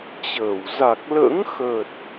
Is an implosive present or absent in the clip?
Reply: absent